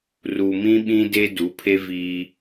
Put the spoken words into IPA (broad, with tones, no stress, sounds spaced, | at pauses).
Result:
r u˨ m ĩ˦ ɓ ĩ˦ d e˦ d u˨˦ pʰ e˦ v iː˦